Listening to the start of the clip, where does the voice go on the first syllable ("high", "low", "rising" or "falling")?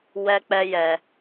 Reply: high